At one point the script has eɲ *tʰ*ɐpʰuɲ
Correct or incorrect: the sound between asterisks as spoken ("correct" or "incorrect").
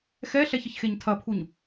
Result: correct